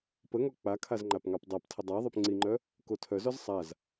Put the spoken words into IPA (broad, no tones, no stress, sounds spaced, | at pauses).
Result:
p ə ŋ ɔ k͡p a kʰ a z ŋ͡ǃ a p ŋ ɑ p dˤ a p tʰ ə dˤ a ðˤ œ p ŋ͡ǀ i ŋ͡ǃ œ | k o tʰ œ z ɔ z sˤ a z